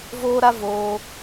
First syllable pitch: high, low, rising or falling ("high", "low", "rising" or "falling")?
high